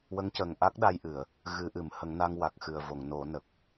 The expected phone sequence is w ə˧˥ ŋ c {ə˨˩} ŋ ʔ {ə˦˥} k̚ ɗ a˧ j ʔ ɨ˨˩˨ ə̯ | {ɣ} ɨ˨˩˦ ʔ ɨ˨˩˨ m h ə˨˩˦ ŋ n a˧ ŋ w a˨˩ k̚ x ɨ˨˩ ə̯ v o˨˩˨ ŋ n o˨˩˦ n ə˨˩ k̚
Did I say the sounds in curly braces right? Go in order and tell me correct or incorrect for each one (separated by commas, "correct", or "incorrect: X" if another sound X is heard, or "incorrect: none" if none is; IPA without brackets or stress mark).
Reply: correct, incorrect: a˦˥, correct